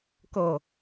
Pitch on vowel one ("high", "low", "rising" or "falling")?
low